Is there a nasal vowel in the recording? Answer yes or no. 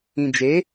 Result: yes